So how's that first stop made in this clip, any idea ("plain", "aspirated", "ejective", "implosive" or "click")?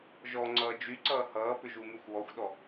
click